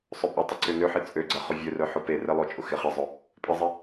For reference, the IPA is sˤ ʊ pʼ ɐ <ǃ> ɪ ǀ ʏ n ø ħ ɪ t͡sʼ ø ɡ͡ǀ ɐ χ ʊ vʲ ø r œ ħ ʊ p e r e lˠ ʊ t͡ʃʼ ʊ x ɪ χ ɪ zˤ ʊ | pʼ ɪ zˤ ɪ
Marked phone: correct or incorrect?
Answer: incorrect